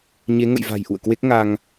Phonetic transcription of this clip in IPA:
ɲe˨˦ŋə̰˧˨jva̤˨˩j ʔṵ˧˨ə̯kwe˦˥k̚ŋa˧ŋ

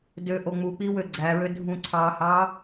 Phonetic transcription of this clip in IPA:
døʔo ŋ͡muk͡pi wøɡ͡ǀæɹø dʱũǀʰɑhɑ

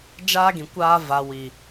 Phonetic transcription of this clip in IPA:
d͡ʒaː˦ɡĩ˨ kʷaː˦ va˨wi˨

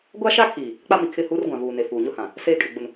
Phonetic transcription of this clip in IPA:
ɡʷa˦ʃa˦kʰiː˨ | k͡pa˦mi˨kʰɪ˦˨hu˦r ɡʷã˨vuː˨ne˨ fuː˨ɲʊ˦hã˨ | seː˦kʼɪ˨ɡ͡bʊ˨n

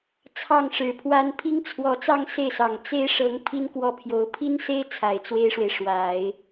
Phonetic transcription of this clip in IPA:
t͡sʰɑ˥˩ŋʂɻ̩˨˩pʰwa˥n pʰi˥ŋt͡sʰwɔ˧˥t͡sɑ˥ŋ se˥˩ɪ̯sɑ˨˩ŋ t͡se˥ɪ̯ʂɤ˧˥ŋ pʰi˥n kwɔ˥˩pʰjo˧˥ʊ̯ pʰi˥nse˥ɪ̯ t͡sʰa˨˩ɪ̯t͡swe˥ɪ̯ʂwe˨ɪ̯ ʂwa˨˩˦ɪ̯

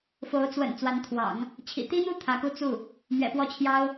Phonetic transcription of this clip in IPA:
fo˧˥ʊ̯ t͡swə̰˨˩n t͡swa˧˥nt̪ʰwɑ̰˨˩˦ŋ | t͡ɕʰḭ˨˩t̪i˥n̪u˥˩ t̪ʰä˧˥ku˥ t͡su˥˩ | mɥɛ̰˨˩pwɔ˥˩t͡ɕʰjɑ˥ʊ̯

